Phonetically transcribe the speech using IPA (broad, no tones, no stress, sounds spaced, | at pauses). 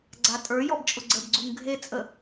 ɡ͡ǀ a tʼ ə˞ j ɔ b t͡ʃʼ ʊ ɡ͡ǀ ə b ɡ͡ǀ u ŋ ɡʱ e t͡sʼ ə